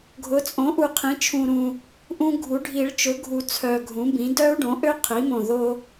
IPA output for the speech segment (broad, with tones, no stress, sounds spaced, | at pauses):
ɡʱ ʊ˩˥ t͡sʼ õ˩˥ ʔ u˨˩ qʰ ĩ˩˥ t͡ʃʰ ũ˨˩ ɾ ũ˨˩ | ʔ ũ˦ ɡʱ u˩˥ ɖʱ i˨˩˦ ɭ t͡ʃ ʊ˩˥ ɡʱ u˨˩ t͡sʰ œ˨˩ ɡʱ ũ˩˥ b ĩ˩˥ d œ˦ u̯ ɖ õ˩˥ ʔ ø˦ qʰ i˩˥ m õ˨˩ ð o˦